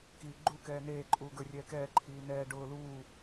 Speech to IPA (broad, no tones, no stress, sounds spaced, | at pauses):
k iː ɡ͡ǃ u k ɛː n eː ǃʼ uː ɡ ə˞ rʲ ɛː k ɛː ǃʰ iː n ɛː ɖ ʊː l uː